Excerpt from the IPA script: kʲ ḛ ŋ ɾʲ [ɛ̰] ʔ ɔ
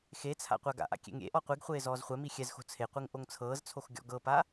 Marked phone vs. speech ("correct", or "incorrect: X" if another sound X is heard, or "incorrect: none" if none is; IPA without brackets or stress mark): incorrect: ḛ